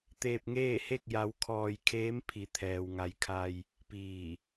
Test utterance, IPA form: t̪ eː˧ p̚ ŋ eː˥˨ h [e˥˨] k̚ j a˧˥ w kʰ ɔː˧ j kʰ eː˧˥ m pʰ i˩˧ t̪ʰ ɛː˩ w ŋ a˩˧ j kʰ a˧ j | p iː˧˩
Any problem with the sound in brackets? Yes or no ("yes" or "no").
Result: no